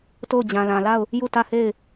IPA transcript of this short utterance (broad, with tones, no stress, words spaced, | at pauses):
to˦˨ʊ̯d͡ʑã˨lã˨la˦˨ʊ̯ | ju˦˨tä˦˨he˦˨ɪ̯